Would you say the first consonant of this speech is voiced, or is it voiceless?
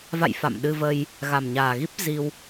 voiced